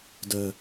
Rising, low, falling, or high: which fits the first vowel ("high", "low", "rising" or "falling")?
low